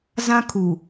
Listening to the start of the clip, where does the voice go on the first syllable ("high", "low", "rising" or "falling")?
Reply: high